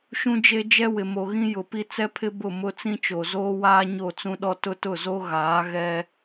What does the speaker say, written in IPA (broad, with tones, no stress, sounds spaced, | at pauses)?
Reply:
ʃ ũ˦ d͡ʒ e˦ d͡ʒ ɛ˦ w ɪ˨ m o˨ ɣ ĩ˦ j ʊ˨ p i˦ t͡s ɛ˦ pʰ ɪ˦ b ʊ˦˨ m ʊ˦ t͡s ĩ˦ t͡ʃ o˨ z oː˦ w aː˦ ɲ o˦˨ t͡s ũ˦ ɗ ɔ˦ t ʊ˦ t ʊ˦˨ z o˦ ɣ aː˨˦ ɣ ɛ˦